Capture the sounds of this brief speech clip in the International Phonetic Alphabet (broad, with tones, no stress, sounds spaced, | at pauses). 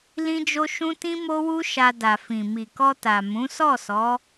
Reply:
l ĩ˦ d͡ʒ o˦ ʃ ũ˦ t ĩ˦ m o˦ w u˦ ʃ a˧ d a˨ f ĩ˨ m i˨ k ɔ˧ t a˨ m ũ˨˦ s ɔ˦˨ s ɔ˨˦